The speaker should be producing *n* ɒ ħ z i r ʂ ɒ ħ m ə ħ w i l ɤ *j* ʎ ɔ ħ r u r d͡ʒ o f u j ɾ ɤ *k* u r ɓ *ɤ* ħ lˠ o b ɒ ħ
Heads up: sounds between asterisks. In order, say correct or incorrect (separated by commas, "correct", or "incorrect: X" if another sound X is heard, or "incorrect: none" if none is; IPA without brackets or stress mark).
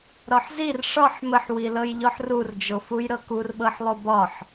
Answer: incorrect: ɾ, correct, correct, correct